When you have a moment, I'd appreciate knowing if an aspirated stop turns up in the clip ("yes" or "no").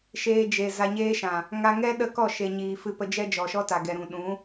no